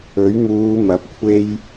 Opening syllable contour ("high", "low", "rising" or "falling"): rising